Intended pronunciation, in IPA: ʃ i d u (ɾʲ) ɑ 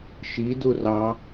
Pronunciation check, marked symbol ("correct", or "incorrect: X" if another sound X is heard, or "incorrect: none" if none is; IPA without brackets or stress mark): incorrect: r